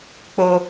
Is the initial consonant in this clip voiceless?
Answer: yes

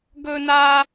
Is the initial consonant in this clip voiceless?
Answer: no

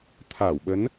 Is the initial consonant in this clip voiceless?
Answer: yes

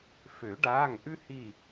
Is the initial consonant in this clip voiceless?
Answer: yes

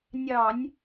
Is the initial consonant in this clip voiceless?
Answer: no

